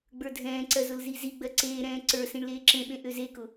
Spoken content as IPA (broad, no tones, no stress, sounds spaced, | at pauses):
ɡ͡b ə˞ dʱ ɛ̃ː ǀ ɜ z ʊ l z i z i ɡ͡b ɜ ǀ eː ɾ ɛ̃ː ǀ ə˞ s ĩ ɳ l eː ǁ ẽ ɓ ẽ ʔ ø z e k ʊ